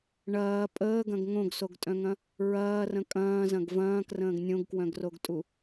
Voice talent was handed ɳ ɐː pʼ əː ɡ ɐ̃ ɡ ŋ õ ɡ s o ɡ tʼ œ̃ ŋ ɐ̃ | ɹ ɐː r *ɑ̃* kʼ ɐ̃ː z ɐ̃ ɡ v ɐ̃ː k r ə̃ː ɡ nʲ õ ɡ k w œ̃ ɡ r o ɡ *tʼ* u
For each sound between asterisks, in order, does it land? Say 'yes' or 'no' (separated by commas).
no, yes